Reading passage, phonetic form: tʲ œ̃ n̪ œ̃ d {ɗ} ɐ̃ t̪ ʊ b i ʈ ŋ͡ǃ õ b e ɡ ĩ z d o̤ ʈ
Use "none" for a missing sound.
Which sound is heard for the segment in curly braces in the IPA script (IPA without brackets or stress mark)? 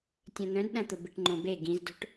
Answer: ɗ